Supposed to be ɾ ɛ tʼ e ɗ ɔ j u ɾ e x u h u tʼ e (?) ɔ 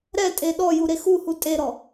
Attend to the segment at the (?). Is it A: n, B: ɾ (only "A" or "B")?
B